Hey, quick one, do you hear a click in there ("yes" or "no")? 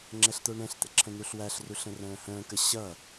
yes